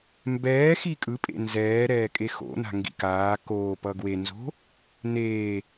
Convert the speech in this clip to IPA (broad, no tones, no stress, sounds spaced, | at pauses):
m b ɛː x i kʼ ɯ pʼ ḛ n z ɛː ɾ ɛː kʼ e x o̰ n a̤ ŋ ɡ ḭ k aː k oː p ʌ ɡ w e n z o̤ | n eː